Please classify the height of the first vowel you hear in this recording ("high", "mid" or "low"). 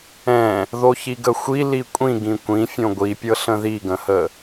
mid